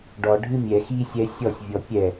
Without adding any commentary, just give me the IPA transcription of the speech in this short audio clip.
ɖ ɔ ɖʱ ɨ mʲ ɛ x i sʲ ɛ sʲ ɔ sʲ vʲ ɔ pʲ ɛ

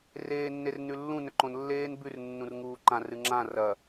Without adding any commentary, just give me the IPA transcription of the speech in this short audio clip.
r eː nː e r n ʉ lː ũ n ɵ ǃ õ n lː eː n b ʉ r nː ũ r ŋ uː ǃ ã r ɨ ŋ͡ǁ ã r ɐ

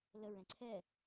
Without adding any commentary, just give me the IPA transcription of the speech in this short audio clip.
l ə ɹ ɛ̃ ǀʰ ɛ

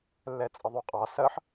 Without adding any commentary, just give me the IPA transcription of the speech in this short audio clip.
lː ɛ t͡sʼ ə ðˤ u qʼ ɑ s ɜ ħ

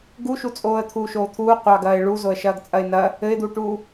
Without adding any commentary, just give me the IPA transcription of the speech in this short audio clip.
ɡ u ʃ u t͡sʼ oː ə̯ t̪ʰ uː ʃ oː t̪ʰ uː qʷ ɑ ɡ ɐː ɪ̯ ɭ u z o ə̯ ʃ ɐː ɡ t͡sʼ ɐ ɪ̯ n ɐ | ɘ ɪ̯ d̪ u ʈ uː

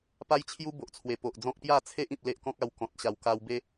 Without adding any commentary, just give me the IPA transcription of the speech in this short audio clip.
p a˦ j t͡ɕʰ j u˦ b o˨ ʔ t͡sʰ w e˨˩ p o˨ ʔ d͡z ɔ̃˦ k̚ p j a˥˧ t͡sʰ e˦ ʔ ĩ˨ p̚ l e˦ ʔ k ɔ̃˦ k̚ a˧ w k ɔ̃˨ t̚ ɕ a˨˩ w k a˧ w b e˦

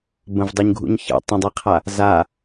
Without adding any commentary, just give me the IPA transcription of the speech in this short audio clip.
b ə̃ v dˤ o ɲ ɡʱ ṵ ɲ ç ə̰ tˤ ə̃ dˤ i qʰ a | z a

